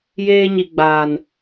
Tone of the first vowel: high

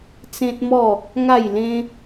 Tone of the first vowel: high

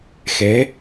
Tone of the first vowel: rising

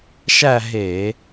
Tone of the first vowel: falling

